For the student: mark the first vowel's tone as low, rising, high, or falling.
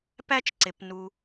high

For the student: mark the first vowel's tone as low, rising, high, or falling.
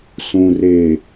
low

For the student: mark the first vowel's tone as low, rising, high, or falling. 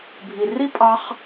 low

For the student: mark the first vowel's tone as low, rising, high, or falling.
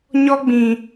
high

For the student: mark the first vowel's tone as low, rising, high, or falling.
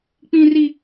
high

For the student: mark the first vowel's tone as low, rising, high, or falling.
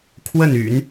falling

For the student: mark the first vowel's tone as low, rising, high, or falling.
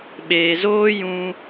low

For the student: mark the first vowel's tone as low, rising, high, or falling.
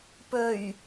low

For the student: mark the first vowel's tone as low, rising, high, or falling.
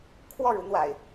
falling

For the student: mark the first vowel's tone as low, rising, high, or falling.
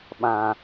low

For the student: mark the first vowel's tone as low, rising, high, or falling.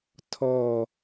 falling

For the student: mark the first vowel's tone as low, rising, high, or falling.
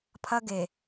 high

